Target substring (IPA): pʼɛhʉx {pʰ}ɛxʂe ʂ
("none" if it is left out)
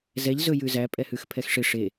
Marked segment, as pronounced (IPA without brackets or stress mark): pʰ